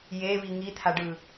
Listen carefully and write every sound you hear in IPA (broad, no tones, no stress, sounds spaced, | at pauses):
j e β i ŋ i t̪ʰ a ɖ ɯ